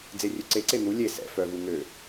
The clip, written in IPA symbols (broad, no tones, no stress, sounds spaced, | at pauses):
d͡z e rʲ ø ǀ e ǀ e n̪ u lʲ e s ɛ̰ f œ v u ŋ ø